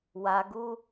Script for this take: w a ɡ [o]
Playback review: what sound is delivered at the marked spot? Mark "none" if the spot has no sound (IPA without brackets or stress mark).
u